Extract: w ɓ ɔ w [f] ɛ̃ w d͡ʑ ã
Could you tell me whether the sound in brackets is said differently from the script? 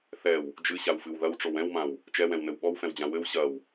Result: no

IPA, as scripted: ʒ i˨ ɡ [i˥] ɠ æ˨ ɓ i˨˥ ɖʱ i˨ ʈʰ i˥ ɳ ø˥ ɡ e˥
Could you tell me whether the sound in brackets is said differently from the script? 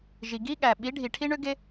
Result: no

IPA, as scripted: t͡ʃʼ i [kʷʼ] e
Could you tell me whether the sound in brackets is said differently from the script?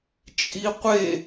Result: yes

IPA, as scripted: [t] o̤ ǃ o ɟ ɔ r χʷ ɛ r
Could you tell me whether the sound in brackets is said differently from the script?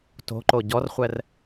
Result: no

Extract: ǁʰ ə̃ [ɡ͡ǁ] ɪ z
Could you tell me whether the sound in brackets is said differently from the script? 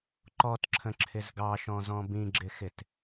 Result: yes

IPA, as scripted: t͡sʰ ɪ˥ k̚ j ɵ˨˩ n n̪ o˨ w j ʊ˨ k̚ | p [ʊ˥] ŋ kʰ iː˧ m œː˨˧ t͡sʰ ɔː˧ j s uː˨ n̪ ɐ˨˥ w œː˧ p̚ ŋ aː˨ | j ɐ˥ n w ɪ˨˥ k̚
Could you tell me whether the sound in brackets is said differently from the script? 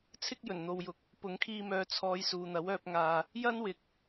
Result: yes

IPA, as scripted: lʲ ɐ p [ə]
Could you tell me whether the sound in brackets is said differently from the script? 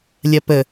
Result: no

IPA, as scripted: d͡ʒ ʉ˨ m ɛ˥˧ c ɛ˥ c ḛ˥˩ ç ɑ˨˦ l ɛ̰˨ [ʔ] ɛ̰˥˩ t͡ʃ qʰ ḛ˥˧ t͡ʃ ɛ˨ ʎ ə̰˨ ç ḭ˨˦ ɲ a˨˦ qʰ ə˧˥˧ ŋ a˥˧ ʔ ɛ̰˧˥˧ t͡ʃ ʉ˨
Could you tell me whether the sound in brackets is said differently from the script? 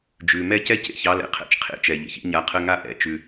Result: yes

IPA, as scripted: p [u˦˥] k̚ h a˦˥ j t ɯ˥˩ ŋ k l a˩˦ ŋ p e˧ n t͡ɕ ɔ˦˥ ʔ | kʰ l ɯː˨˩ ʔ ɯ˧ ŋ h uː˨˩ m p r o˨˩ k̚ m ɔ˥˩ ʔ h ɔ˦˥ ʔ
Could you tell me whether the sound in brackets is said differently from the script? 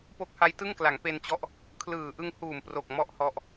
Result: yes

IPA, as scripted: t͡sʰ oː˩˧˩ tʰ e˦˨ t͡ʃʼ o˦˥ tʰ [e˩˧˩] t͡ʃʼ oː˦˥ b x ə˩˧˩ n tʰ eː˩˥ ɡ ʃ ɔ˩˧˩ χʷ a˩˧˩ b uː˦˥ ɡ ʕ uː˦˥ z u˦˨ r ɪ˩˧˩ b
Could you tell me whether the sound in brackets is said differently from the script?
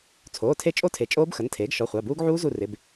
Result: yes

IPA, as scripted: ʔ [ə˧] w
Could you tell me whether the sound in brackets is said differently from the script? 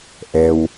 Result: yes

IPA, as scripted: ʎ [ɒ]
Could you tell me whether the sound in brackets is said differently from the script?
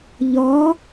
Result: no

